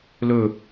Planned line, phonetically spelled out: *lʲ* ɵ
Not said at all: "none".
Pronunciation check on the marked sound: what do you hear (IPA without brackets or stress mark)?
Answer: l